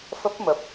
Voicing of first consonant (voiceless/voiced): voiceless